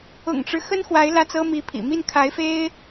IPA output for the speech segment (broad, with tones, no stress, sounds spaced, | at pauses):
ʊ̰˨˩ ŋ ʈ͡ʂ ɻ̩˦ x ə˥ n x w a˧˥ ɪ̯ l ä˥˩ t͡s ɤ˥ m i˧˥ pʰ ḭ˨˩ m i˥˩ n kʰ a˧˥ ɪ̯ f e˥ ɪ̯